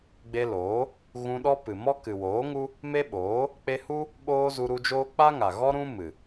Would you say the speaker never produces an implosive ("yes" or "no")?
no